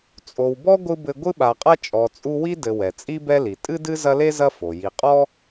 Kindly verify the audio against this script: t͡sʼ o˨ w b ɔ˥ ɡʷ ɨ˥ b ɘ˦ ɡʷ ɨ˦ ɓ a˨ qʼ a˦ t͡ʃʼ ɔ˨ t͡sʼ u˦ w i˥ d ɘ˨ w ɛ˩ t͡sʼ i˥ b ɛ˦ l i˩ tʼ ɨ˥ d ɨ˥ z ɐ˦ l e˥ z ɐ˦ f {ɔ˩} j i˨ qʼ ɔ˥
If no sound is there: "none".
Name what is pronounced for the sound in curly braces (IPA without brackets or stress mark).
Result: o˩